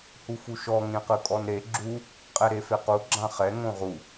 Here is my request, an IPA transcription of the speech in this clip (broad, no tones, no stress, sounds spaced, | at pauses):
h u f u ʃ ɔ ŋ ẽ q ɯ kʼ ɔ n ɾ e ɡ͡ǁ u | qʼ ɛ ɾ e f e q u ɡ͡ǁ ã χ ɛ ŋ õ ʁ u